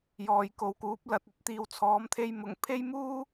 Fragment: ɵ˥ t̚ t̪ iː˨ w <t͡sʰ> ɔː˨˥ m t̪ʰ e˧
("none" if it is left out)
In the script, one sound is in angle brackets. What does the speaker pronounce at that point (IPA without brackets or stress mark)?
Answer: t͡sʰ